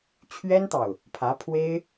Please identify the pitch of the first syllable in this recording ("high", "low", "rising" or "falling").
high